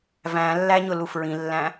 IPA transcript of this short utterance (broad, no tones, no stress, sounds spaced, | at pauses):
v æ̃ lː æ ɲ ʊ l u f ɹ ĩ lː æ̃